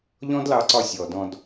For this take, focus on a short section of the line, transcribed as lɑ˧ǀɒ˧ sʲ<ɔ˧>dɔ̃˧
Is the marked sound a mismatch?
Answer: yes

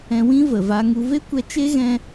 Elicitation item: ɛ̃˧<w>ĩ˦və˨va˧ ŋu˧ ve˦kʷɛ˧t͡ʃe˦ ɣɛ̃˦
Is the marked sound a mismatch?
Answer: no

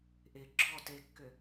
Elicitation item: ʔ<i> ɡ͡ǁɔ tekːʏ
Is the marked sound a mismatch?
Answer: yes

